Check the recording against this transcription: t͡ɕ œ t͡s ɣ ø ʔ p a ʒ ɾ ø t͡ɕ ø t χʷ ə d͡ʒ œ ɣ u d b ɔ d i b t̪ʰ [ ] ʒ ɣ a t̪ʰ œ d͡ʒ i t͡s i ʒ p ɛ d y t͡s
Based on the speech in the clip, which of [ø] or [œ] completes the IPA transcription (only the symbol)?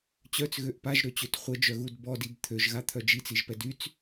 ø